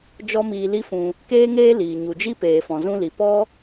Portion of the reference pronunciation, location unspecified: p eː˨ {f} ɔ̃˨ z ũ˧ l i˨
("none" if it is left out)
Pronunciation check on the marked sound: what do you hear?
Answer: f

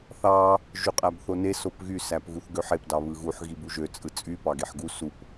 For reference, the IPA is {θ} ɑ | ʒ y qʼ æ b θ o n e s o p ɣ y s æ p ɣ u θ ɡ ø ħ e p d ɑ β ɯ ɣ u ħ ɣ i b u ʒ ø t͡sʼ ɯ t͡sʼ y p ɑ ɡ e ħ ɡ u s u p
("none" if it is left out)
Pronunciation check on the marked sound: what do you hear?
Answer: θ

